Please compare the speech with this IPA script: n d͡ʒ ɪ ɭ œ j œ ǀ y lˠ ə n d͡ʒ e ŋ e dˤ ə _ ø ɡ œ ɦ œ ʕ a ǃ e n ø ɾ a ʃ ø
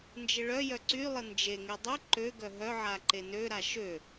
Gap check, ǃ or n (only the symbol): ǃ